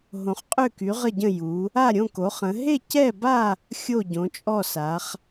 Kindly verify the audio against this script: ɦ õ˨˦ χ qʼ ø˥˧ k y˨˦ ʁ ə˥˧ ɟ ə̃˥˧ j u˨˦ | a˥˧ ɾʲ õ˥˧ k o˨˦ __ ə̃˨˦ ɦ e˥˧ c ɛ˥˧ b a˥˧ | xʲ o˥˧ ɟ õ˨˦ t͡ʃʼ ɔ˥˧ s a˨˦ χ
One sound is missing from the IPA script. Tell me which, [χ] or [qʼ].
χ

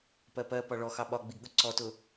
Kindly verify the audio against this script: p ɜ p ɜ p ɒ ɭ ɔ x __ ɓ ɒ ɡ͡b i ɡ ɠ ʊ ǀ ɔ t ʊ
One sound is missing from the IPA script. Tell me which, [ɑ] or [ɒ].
ɑ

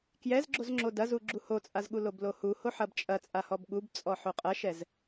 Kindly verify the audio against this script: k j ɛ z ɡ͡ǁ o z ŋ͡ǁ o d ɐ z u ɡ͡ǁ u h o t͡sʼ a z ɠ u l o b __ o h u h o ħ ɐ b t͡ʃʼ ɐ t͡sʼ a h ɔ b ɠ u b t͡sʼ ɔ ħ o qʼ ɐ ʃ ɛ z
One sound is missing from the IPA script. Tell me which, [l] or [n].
l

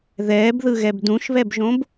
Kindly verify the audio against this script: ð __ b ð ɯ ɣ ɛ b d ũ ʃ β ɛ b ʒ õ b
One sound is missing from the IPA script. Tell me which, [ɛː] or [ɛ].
ɛː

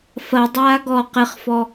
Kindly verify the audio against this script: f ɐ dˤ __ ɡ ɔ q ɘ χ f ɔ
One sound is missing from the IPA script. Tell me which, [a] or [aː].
aː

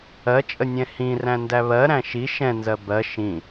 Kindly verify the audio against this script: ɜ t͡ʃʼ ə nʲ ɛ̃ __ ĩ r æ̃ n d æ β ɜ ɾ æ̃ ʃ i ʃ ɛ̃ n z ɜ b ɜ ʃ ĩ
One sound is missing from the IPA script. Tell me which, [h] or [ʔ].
h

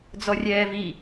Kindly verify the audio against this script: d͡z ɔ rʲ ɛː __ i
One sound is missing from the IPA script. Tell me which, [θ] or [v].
v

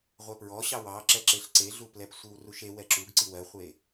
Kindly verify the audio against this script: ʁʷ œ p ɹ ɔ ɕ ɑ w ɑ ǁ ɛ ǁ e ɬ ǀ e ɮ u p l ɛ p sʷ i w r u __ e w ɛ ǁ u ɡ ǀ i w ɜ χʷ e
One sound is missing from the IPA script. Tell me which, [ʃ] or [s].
ʃ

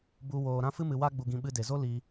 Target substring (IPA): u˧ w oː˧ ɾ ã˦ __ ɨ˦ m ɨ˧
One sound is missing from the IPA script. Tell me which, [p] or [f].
f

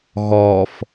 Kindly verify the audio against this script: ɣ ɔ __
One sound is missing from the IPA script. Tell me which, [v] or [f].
f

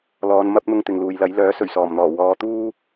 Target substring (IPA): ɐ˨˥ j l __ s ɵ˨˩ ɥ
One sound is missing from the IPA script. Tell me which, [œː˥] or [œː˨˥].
œː˨˥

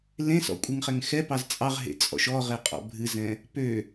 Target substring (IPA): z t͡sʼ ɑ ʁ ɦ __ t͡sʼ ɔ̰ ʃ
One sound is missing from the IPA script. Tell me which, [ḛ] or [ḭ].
ḛ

